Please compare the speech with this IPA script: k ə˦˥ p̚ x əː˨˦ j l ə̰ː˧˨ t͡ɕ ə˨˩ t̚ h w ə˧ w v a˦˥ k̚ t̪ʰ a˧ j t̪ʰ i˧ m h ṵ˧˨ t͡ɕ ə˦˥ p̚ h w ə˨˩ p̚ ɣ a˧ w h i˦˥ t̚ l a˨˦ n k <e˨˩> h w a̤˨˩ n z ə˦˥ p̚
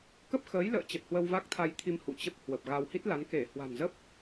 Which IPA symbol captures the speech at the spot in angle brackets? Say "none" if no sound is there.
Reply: e˧˩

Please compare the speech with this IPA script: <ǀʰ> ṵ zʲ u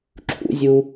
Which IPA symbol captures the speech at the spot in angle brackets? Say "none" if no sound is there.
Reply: ǁʰ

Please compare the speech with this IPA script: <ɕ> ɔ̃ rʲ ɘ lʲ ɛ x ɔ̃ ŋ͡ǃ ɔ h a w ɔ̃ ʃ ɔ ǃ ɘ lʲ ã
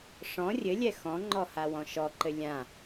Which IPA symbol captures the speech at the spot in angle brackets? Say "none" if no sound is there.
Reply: ʂ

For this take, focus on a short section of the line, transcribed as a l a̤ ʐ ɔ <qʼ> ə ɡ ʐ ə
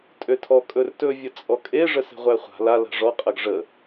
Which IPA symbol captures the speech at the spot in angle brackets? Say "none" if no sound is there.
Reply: qʼ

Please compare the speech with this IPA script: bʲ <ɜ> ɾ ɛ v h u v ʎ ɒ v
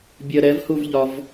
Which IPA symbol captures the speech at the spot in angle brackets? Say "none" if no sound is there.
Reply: ɜ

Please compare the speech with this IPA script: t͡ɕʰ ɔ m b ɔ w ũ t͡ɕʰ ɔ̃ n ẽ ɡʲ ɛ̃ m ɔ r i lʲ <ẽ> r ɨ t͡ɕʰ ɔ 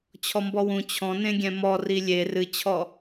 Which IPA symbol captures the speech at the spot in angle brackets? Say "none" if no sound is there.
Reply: e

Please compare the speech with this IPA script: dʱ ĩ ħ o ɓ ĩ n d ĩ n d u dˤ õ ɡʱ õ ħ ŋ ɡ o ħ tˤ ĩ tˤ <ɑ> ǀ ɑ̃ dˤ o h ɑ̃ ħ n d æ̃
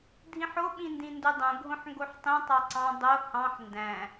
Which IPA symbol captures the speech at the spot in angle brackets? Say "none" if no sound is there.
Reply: ɑ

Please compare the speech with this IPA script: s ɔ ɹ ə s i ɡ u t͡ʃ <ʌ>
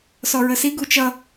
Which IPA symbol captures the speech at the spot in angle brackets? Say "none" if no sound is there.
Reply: ʌ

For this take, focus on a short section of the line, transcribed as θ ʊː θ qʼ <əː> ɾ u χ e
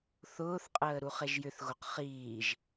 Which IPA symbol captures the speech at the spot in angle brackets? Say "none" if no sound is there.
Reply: əː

